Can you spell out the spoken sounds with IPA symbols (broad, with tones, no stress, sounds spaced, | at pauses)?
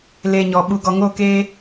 l e˧ ɲ ɔ˨ ɓ u˨ ɡ ɔ˨ ŋ o˦˨ k e˦